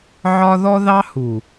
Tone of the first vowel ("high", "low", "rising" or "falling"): high